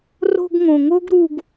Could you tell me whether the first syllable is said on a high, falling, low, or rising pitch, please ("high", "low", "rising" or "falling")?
high